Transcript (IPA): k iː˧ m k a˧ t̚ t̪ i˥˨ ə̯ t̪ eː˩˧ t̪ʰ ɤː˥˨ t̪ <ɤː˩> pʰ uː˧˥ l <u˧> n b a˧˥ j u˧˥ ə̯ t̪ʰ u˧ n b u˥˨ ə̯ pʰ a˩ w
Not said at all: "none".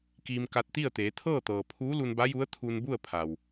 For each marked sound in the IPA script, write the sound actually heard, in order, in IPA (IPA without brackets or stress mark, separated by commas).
ɤː˩, u˧